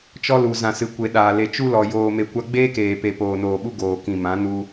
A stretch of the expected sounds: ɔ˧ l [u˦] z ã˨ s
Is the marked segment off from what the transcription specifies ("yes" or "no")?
yes